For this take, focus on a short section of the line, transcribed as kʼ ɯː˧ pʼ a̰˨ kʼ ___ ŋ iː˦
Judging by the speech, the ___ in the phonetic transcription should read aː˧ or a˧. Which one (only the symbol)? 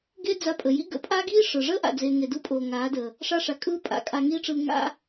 a˧